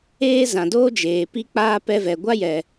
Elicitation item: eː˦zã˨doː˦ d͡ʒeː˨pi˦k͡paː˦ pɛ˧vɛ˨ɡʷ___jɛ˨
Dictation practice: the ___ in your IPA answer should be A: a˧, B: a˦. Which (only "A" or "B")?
B